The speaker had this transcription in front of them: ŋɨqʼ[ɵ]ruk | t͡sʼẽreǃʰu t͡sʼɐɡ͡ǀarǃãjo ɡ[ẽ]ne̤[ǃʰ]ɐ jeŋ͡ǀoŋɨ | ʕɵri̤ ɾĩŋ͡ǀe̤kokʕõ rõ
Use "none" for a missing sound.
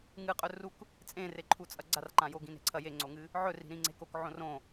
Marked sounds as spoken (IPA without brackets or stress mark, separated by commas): ɵ, ĩ, ǀʰ